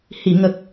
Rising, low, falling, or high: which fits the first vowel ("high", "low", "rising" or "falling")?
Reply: low